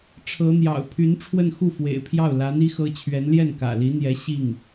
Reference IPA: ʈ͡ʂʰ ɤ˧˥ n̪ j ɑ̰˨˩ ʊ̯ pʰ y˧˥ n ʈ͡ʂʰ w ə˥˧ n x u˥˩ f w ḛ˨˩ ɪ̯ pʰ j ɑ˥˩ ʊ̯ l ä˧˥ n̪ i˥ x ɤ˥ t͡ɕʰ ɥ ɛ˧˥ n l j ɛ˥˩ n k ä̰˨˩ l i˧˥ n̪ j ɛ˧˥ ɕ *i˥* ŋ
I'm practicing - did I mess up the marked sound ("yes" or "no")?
yes